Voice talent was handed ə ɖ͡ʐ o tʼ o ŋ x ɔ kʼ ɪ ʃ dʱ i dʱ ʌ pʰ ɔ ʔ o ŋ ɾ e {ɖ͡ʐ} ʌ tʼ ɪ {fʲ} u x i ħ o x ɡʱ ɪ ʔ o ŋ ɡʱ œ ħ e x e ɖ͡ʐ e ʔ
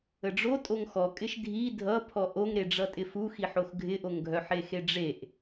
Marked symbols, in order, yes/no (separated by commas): yes, no